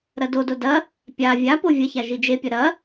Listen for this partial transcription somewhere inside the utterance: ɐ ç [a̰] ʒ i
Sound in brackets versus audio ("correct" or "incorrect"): incorrect